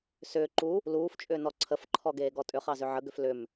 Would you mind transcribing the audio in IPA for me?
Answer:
s ʏː ǃ u | l uː f t͡ʃʼ ʏː n ɔ ǀʰ ə f ǃʰ ɔ ɡ eː ɡ ɔ tʼ ʏ χ ɑ z ʏ ʕ ə ɡ ʏ f l ʏ m

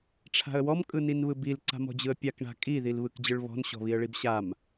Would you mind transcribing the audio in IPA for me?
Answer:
ʈ͡ʂʰ a̤ ə̯ w ɔ m kʼ ɯ n i n β ɯ b i l ǀ a̤ m ɔ̤ d͡ʑ ɯ ə̯ pʲ a k ɳ a̤ kʼ i ð i l β ɯ k d͡ʑ ɯ ɭ β ɔ̤ n ɕ ɔ̤ β i ə̯ ɭ i b ɕ a m

